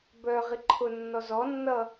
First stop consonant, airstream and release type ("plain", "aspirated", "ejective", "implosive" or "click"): plain